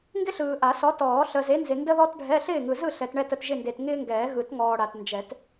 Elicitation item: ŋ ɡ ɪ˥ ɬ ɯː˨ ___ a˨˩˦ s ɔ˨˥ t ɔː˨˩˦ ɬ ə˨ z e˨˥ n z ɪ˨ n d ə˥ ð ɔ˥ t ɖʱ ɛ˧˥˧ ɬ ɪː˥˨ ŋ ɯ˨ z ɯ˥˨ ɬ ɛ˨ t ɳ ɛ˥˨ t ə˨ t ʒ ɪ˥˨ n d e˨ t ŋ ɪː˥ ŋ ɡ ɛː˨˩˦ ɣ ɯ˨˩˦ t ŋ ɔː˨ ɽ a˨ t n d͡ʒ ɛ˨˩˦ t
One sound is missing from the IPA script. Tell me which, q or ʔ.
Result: ʔ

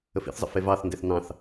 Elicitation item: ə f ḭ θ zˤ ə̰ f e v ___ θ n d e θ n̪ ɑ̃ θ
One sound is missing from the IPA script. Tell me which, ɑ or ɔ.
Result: ɑ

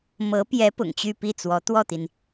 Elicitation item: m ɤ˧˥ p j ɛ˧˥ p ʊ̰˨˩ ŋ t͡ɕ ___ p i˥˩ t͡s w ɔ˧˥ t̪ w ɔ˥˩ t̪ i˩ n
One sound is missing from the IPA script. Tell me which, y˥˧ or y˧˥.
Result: y˥˧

